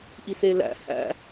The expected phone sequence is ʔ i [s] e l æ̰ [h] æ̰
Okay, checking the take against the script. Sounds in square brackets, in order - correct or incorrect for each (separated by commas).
correct, correct